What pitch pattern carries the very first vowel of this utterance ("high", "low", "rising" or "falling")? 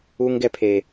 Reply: high